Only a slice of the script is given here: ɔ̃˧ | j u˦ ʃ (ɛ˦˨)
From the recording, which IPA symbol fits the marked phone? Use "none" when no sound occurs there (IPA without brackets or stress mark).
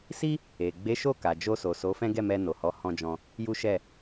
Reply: ɛ˦˨